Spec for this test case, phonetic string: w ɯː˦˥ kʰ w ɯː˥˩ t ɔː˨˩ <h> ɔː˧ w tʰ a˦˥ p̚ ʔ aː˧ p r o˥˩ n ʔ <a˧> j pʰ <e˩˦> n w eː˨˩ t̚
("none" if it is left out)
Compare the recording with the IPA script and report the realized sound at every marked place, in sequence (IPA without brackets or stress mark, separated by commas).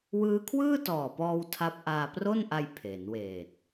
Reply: p, a˧, e˩˦